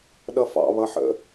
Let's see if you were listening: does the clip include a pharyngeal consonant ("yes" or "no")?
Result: yes